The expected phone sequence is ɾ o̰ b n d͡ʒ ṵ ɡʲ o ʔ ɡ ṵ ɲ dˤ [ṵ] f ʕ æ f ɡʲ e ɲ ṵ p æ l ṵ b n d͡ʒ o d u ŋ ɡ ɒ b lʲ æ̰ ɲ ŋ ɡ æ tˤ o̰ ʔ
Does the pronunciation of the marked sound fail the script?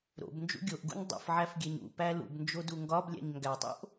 no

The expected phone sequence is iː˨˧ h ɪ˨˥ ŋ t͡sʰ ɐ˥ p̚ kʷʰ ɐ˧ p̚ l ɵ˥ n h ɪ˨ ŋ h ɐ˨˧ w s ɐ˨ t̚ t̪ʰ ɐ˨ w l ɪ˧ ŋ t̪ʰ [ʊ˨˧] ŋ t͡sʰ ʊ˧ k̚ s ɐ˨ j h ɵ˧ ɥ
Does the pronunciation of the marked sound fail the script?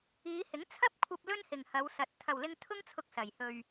yes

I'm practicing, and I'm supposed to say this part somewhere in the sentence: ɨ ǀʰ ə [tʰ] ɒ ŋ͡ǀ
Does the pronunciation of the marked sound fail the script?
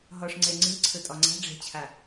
yes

